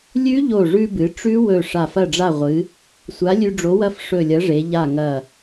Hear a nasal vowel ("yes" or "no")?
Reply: no